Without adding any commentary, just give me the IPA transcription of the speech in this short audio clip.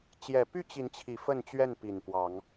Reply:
t͡ɕ j ɛ˨˩ p y˥˨ t͡ɕ i˨˦ n t͡ɕʰ i˨˩ f ə˥˨ n t͡ɕ ɥ ɛ˥˨ n p i˨˩ n p w ɑ˨˦ ŋ

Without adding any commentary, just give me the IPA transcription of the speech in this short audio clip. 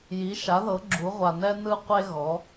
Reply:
j i˩˥ ʃ a˩˥ ð ɤ˩˥ ɡ͡ǁ u˩˥ ʁʷ a˨ n ɛ˥ n ɯ˥ qʷ e˥ ɣ ɔ˩˥

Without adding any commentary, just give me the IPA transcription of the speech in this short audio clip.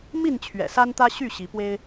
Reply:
m i˥˨ n t͡ɕʰ ɥ ɛ̰˨˩ s a˦ n t̪ ä˦ ɕ y˥˨ ɕ i˨˦ p w e˦ ɪ̯

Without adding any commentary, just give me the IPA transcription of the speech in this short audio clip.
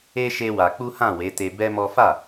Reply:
e˦ ʃ e˦ w a˧ k͡p u˦ h ã˦˨ w e˨˦ t e˧ b ɛ˦ m ɔ˦ f a˦˨

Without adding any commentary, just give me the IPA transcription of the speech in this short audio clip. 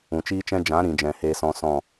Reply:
ũ˨ t͡ʃ iː˦ t͡ʃ ɛ̃˦ d͡ʒ ã˨˦ ɾ ĩ˨ d͡ʒ ɛ̃˨ h eː˧ s ɔ̃˧ s ɔ̃˦˨

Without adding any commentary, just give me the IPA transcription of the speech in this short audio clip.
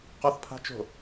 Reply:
q ɔ θ pʰ a̤ t͡ʃ o̤

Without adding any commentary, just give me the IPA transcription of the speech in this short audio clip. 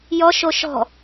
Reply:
j ɔ ʃ o ʃ ɔ̤

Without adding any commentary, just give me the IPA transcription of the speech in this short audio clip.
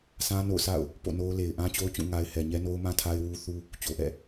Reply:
sʰ ã˦ n o̰˦˨ ʊ̯ s a̰˦˨ ʊ̯ | p o̰˦˨ n o˦ ʊ̯ l e˨ ɪ̯ ʔ ã˦ t͡ɕ o˦ ʊ̯ t͡ɕ ũ˦˨ ŋ a˦ ɪ̯ h ɛ˨ ɲ ɛ˦ n o˦ ʊ̯ m ã˦ tʰ a˦ ɪ̯ w u˦ θ u˦ | t͡ɕ o˨ ʔ ɛ̰˦˨

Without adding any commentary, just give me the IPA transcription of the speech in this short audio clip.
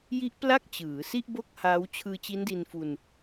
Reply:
j i˦˥ ʔ p l a˥˩ k̚ t͡ɕ ɯː˩˦ s i˥˩ ʔ b o˥˩ k̚ h aː˦˥ w t͡ɕʰ ɯː˧ t͡ɕ i˦˥ n d i˧ n f u˧ n

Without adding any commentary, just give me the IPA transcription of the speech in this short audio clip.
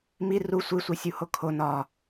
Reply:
m i r u sʷ i sʷ i sʲ u h o kʰ o n ɒ

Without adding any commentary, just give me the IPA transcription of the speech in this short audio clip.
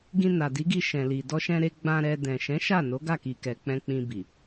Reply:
ɡ ĩ˧ n a˨ d i˨˦ ɡ i˧ ʃ ɛ̃˨ l i˨ d ɔ˧ ʃ ɛ̃˧ ɾ e˧ ɡ͡b ã˧ ɾ ɛ˧ d ɛ̃˨ ʃ ɛ̃˨˦ ʃ a˦˨ n o˨˦ ɡ a˦˨ k i˨ k ɛ˨ k͡p ɛ̃˧ k͡p ĩ˧ b i˨

